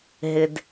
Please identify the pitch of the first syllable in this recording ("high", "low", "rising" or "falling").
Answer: low